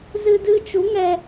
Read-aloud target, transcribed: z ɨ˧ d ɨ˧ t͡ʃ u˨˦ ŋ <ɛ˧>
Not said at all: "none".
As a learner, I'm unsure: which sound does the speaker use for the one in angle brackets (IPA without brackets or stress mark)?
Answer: ɛ˧